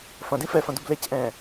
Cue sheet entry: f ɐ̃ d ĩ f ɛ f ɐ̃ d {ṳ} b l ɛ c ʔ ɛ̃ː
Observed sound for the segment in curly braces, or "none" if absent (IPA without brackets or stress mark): u